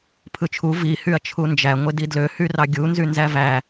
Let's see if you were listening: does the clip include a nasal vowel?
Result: no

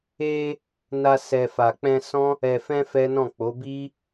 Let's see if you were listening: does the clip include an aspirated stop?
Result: no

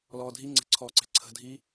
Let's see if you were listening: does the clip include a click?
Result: yes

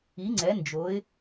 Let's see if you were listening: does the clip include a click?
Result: yes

